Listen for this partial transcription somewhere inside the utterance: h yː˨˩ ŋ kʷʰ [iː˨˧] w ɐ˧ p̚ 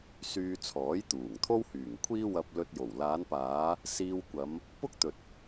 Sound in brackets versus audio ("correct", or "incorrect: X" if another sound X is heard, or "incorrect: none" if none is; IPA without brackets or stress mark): incorrect: iː˥